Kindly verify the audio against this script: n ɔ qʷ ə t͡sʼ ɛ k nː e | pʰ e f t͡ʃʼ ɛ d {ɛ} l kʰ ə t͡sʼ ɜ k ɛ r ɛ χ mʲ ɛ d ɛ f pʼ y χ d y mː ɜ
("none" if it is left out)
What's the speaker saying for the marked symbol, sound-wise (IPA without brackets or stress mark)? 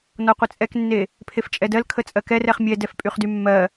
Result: ɜ